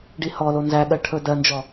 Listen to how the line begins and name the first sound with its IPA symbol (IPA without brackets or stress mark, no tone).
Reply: ɖ